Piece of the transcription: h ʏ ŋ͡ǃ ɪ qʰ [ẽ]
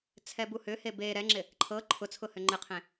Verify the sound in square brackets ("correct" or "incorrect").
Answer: correct